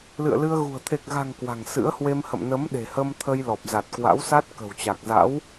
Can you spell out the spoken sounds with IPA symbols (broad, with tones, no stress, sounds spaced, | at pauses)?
l ɨ̰˧˨ ə̯ l ɨ˧ ə̯ ɣ ṳ˨˩ ə̯ t̪ʰ e˨˩ k̚ ɣ a̤˨˩ ŋ k w a̤˨˩ ŋ s ɨ̰˧˥ ə̯ h w e˧ m h ə̰˧˨ m n ə˨˦ m ɗ e̤˨˩ h ə˧ m t̪ʰ ə˧ j l ɔ˨˩ p̚ z a˨˩ t̚ k w a̰˧˥ w s a˦˥ t̚ k ə̤˨˩ w t͡ɕ a˨˩ k̚ z a̰˧˥ w